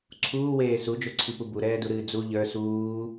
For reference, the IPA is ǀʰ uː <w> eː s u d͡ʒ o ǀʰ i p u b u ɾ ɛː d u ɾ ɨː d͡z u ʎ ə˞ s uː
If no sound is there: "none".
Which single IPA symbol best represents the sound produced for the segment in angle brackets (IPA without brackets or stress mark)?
w